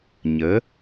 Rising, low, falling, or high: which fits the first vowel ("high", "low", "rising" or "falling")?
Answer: rising